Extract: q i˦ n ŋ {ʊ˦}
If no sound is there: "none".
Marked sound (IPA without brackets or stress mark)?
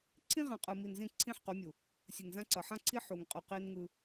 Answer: ɯ˦